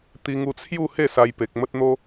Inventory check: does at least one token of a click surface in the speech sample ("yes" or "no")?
no